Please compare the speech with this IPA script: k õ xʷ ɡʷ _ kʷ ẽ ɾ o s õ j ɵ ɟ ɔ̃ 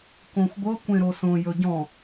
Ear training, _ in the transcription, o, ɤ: ɤ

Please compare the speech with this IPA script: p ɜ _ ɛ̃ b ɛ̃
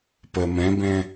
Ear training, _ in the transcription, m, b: m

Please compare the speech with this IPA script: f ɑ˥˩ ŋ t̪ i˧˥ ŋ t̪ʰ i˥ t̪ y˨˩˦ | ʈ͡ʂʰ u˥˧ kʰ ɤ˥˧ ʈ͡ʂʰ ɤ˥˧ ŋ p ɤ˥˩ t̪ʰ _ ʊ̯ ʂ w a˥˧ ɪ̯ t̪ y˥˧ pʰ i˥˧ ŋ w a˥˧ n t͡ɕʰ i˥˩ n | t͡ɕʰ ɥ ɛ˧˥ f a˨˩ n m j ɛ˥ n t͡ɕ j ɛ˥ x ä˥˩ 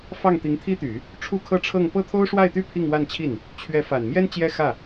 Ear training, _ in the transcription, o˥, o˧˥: o˥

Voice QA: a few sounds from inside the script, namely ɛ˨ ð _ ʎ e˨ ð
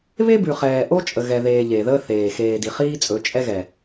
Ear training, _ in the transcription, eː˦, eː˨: eː˨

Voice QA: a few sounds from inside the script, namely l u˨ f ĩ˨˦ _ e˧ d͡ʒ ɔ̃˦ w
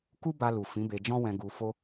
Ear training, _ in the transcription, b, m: b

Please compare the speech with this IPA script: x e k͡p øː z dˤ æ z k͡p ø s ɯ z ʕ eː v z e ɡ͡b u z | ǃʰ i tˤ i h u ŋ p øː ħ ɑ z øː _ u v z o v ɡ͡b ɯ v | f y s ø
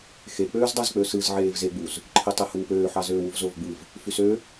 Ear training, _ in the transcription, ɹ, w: w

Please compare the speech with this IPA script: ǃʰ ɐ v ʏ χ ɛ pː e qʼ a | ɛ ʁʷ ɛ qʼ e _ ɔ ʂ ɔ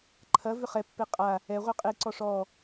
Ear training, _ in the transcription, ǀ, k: ǀ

